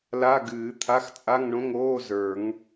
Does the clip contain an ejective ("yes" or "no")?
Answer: yes